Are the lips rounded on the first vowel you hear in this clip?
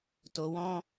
yes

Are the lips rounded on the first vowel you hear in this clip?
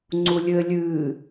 yes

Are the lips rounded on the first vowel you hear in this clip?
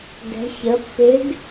no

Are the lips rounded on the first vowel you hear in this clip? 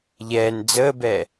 no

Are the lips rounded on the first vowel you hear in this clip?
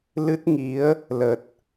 no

